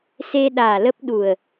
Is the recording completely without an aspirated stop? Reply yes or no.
yes